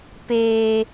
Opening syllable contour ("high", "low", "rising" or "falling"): low